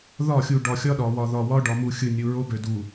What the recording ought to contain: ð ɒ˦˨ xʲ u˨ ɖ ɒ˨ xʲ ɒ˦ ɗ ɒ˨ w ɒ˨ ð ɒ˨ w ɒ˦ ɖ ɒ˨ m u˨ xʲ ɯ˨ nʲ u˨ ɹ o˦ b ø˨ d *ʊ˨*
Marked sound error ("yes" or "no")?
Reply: yes